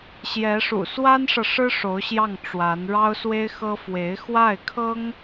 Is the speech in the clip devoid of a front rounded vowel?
yes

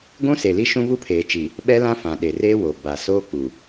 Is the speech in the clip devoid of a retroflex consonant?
yes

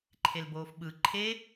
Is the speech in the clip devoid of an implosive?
no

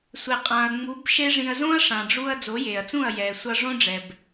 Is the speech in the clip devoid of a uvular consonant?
no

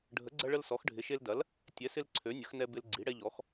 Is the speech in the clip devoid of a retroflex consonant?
no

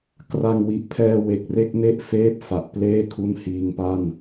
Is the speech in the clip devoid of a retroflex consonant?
yes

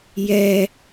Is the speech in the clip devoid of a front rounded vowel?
yes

